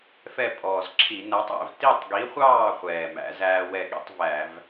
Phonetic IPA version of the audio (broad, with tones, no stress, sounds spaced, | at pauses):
f ɛ˥˨ pʼ ɔː˨˩ z ǁʰ i˧˩˧ n æ˨˥ tˤ æ̰˩˧ v t i˥˨ tˤ ɡ i˨˥ χʷ ɑː˥˨ χʷ ɛː˨˩ m æ̰˨˥ z æː˦ w ɛ˥˨ ɠ ḭ˦ tˤ v æ˧˩˧ v